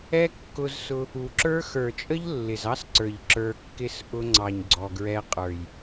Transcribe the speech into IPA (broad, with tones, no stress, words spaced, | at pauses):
ɛ˦ kːʊ˧zsʊ˧ | u˨ǁə˞˦ xə˞˨t͡ʃʼə˦ʎ lːɪ˨zɑ˦sǀə˞˨ʎ ǁə˞˧kːɪ˦s ʔʊ˧ŋ͡ǀɑ˨ɲ ɡ͡ǀɔ˨ɡɹɛ˧qʼə˞˨j